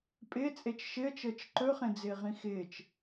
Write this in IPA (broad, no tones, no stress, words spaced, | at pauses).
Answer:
pʼɪːt͡sʼet͡ʃ ʃɪə̯t͡ʃəːt͡ʃ ǃɵχẽd͡zɪːʁĩ xɪːt͡ʃ